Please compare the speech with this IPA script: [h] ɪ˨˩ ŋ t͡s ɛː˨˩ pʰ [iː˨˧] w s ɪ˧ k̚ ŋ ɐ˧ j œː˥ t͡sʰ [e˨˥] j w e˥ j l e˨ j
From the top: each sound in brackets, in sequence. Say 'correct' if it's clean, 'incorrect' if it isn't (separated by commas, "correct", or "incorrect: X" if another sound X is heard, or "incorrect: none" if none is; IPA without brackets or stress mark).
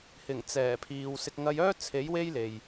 correct, incorrect: iː˨, correct